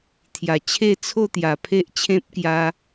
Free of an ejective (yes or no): yes